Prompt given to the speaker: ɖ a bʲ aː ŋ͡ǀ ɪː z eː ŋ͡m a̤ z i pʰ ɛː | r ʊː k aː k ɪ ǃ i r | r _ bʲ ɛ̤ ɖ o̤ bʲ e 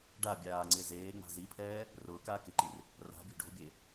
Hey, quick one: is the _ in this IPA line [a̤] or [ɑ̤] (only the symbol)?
a̤